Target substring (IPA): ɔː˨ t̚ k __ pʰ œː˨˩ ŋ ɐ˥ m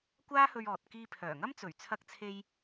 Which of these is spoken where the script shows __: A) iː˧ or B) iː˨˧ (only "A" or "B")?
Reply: A